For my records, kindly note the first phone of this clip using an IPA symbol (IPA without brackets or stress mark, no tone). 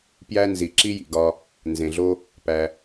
p